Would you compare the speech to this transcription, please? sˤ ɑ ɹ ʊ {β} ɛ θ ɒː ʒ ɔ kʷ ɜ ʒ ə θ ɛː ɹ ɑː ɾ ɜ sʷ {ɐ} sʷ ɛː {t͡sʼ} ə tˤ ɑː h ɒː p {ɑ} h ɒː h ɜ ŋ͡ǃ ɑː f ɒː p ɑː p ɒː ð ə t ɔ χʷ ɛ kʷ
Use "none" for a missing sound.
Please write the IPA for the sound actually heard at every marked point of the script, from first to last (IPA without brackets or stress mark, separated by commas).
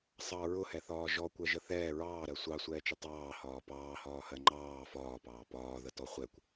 h, ɑ, t͡ʃ, ɑː